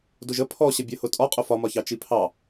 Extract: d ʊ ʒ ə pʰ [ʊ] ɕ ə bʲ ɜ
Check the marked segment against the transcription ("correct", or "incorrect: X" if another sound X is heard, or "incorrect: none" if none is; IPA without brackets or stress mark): incorrect: ɔ